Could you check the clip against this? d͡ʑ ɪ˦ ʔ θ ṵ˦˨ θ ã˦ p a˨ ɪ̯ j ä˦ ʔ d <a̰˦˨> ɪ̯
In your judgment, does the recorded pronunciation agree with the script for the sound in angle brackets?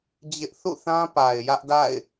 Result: yes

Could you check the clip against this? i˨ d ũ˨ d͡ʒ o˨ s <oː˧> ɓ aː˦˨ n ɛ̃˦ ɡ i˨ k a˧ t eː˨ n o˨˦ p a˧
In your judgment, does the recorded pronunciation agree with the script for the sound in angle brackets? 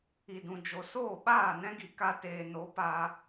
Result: no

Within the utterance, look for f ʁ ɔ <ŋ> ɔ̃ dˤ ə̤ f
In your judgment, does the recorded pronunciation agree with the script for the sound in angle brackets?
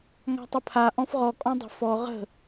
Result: no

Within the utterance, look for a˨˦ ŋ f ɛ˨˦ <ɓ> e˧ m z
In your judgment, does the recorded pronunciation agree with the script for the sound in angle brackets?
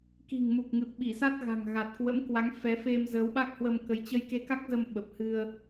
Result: no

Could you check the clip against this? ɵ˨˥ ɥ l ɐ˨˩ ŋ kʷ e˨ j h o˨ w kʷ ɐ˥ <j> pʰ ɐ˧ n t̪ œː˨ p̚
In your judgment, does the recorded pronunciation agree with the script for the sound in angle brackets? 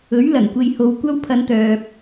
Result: no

